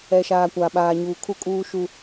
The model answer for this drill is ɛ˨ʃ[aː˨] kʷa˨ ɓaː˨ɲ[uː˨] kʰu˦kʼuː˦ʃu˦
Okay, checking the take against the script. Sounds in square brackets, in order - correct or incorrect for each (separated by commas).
correct, correct